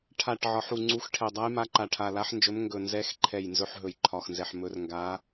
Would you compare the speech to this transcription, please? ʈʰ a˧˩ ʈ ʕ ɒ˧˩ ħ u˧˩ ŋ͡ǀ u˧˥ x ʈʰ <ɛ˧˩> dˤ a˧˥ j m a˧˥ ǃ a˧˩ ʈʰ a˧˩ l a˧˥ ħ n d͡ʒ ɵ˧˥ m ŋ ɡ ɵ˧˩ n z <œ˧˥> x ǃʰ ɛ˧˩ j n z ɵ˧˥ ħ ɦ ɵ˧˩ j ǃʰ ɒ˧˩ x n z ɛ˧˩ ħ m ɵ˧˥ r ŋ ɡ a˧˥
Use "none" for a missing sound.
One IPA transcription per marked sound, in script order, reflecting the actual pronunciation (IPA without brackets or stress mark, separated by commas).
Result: ɛ˧˩, ɛ˧˥